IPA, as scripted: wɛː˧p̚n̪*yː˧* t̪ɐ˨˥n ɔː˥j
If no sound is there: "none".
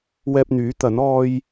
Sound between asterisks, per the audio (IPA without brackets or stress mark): yː˨˥